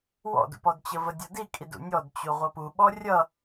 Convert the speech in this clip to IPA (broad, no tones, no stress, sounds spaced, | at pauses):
w ɔ̰ d ṵ p ɔ d t͡ɕ ə v ə dʲ ɔ d i kʼ i d ṵ nʲ ɔ d t͡ɕ u ʁʷ ʌ p u ɓ ɔ rʲ ʌ